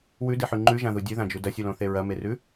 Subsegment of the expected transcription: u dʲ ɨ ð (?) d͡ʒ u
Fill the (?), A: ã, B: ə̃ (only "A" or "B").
A